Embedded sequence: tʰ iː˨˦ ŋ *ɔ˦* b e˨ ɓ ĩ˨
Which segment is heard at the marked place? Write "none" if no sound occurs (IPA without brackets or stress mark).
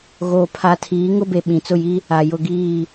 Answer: ʊ˦